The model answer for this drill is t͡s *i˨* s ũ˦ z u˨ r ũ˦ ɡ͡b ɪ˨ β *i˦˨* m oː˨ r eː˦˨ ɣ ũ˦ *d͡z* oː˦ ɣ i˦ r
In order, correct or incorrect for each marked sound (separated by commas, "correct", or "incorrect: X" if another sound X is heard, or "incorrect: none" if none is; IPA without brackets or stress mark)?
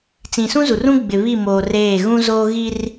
incorrect: ĩ˨, correct, incorrect: z